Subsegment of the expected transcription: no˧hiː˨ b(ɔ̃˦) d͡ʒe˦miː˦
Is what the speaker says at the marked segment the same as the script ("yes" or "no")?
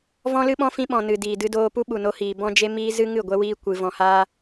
yes